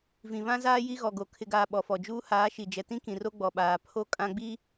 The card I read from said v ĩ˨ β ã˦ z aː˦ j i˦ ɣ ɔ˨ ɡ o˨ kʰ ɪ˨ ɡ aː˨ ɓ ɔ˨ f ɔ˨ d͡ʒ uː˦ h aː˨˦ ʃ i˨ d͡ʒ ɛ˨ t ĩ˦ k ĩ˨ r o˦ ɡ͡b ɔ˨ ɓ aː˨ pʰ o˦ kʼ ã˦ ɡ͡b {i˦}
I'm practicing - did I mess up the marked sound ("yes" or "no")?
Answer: no